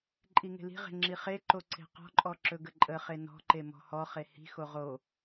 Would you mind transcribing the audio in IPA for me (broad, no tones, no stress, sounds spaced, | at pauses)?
ǃʼ i ŋ e̤ l i̤ ʁ e̤ ŋ͡ǁ i χ e ǃ o ǀ e̤ q ɔ̤ ǃʼ ɔ ǁ ɵ ɡ ə ǃʼ ə χ e n ɔ̤ ǃ e m ɔ̤ h ɔ χ e h i̤ x o ʁ o